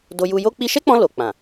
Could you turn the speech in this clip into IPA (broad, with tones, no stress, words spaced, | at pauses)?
do˧ju˧jo˦ k͡pi˧ʃɛ˦k͡pɔ̃˧ lo˨k͡pã˨